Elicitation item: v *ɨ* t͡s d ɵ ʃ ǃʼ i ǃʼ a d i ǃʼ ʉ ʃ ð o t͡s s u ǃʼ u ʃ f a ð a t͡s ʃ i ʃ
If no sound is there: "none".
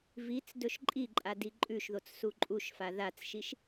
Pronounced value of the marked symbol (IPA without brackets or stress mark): i